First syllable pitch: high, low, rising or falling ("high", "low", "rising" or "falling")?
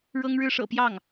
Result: high